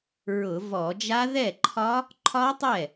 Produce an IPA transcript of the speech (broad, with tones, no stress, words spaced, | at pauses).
ɹʊ˧˩˧vɔ˧˩˧d͡ʒa˦˥ ðɛ˥˩ǃʰɒ˦˥ | ǃʰɒ˦˥tˤɛ˥˩